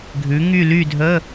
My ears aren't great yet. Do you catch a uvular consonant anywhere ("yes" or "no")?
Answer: no